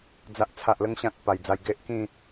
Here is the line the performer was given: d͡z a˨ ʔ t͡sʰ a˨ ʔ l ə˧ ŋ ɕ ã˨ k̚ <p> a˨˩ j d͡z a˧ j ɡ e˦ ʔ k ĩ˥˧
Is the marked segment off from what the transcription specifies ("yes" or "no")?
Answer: no